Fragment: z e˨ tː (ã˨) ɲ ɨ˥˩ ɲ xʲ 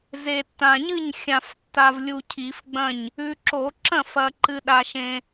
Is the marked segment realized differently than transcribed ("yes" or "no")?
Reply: no